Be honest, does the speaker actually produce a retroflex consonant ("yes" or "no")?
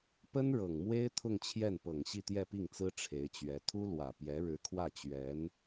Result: yes